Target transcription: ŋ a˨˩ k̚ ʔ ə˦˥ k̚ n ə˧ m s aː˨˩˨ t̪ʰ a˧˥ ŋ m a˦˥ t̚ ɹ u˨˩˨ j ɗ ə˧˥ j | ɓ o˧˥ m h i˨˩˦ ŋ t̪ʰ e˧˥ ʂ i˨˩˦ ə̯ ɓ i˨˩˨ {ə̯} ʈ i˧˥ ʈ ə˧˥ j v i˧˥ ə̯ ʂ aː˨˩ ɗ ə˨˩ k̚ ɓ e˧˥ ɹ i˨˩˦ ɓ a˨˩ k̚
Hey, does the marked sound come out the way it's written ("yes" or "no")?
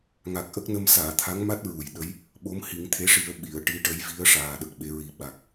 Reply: yes